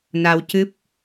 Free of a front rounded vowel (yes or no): yes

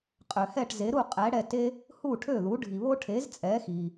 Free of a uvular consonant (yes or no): no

